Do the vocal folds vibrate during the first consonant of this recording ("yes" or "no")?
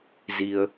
yes